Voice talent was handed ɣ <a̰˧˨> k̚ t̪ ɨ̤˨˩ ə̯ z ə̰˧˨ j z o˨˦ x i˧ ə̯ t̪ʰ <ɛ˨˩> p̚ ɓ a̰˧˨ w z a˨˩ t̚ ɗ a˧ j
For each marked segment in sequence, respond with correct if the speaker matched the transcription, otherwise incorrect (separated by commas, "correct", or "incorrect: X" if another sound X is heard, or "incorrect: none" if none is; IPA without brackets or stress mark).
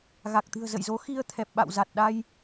incorrect: a˨˩, correct